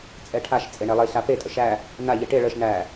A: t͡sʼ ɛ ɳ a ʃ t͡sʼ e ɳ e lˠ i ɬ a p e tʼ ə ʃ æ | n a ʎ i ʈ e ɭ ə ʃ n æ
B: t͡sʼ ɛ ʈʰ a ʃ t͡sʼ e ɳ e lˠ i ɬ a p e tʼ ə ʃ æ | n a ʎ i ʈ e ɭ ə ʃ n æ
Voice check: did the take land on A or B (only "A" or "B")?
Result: B